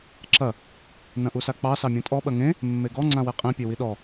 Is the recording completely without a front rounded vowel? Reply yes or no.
yes